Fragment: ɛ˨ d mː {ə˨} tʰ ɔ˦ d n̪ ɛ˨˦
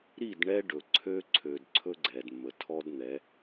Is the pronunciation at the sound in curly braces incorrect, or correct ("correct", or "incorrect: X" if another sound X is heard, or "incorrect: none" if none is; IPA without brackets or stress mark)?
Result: correct